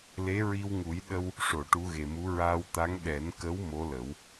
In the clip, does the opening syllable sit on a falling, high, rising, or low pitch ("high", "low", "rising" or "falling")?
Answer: rising